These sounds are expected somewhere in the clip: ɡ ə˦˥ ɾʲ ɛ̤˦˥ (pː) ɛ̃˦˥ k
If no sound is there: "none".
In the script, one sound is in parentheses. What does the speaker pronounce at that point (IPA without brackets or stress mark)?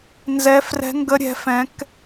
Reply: f